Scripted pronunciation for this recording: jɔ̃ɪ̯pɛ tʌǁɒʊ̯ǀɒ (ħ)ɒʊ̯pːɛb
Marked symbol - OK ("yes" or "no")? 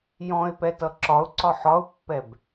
yes